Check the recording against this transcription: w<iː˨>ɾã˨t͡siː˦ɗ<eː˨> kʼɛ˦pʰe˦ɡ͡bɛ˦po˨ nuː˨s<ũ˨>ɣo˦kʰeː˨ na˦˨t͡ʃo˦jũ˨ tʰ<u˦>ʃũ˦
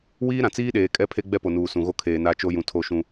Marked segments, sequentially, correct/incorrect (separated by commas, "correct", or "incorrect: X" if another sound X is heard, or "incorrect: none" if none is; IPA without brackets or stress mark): incorrect: iː˦, correct, correct, incorrect: o˦